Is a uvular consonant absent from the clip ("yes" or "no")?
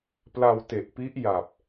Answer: yes